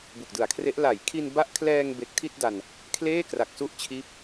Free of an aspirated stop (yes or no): no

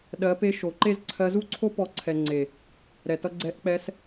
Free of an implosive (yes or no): no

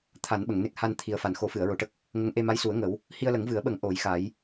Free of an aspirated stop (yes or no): no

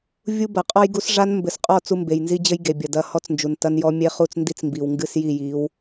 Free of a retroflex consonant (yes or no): no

